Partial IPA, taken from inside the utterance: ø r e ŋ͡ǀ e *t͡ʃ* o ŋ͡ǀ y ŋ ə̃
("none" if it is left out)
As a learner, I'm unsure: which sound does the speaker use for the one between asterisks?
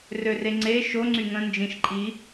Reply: ʃ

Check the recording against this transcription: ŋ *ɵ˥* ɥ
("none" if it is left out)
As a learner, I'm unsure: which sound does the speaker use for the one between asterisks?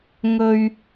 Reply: ɵ˧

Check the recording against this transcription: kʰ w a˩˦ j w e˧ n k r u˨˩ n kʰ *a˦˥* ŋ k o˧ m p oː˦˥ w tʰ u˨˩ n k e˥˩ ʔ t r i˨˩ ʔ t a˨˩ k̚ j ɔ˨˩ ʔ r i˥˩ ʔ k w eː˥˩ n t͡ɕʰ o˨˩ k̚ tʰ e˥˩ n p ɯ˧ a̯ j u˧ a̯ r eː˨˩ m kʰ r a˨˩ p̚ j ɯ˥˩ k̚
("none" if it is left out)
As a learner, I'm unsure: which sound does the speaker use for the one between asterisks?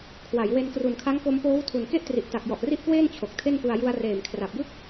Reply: a˦˥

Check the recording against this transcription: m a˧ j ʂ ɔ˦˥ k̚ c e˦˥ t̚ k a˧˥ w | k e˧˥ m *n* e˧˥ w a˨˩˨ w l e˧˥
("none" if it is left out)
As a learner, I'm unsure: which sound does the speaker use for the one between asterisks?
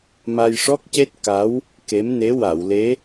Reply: n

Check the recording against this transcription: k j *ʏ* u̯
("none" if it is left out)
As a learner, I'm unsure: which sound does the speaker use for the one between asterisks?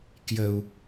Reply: ə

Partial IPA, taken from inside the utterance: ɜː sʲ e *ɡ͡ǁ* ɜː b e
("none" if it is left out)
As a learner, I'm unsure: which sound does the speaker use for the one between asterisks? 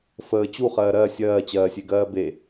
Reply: ɡ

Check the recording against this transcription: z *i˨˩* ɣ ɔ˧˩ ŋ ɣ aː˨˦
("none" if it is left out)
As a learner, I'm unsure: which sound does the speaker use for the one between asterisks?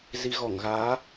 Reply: i˧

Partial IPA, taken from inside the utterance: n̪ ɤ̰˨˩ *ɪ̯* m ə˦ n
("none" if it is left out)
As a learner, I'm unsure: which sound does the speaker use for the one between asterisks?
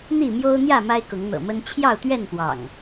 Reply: none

